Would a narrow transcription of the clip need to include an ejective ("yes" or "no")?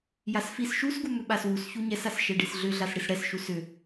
no